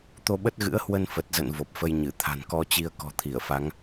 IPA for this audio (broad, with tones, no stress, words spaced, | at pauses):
t̪o˧ɓə˦˥t̚ɣɨ̰˧˥ə̯hwə˧n fə˨˩t̚zə̰˧˨n vo˨˩p̚fə˧jɲɨ˧˩ t̪ʰa̤˨˩nkɔ˧t͡ɕi˧ə̯ kɔ̤˨˩t̪ʰi˧˩ə̯fa˨˦ŋ